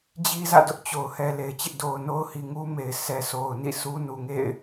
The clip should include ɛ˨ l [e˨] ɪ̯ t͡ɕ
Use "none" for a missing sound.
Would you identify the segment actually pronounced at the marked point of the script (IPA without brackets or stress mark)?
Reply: e˨